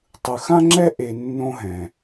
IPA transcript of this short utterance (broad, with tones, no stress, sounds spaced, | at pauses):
tˤ ɯ˨ x ã˥ ŋ͡ǁ ɛ˥ ʔ e˦ nː õ˥ ɦ ɛ̃˨